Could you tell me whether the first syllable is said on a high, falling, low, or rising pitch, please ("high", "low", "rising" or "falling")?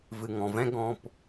low